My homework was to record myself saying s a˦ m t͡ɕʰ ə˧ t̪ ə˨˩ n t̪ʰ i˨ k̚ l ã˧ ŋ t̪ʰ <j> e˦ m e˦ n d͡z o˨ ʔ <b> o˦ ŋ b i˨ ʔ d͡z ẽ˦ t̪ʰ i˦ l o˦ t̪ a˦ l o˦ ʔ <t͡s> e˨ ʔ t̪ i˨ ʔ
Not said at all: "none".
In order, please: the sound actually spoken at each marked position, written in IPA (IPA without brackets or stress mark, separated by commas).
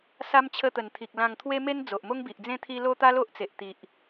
w, m, t͡s